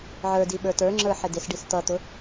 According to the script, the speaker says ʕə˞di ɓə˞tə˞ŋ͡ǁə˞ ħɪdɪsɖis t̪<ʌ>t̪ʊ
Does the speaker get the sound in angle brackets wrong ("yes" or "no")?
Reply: no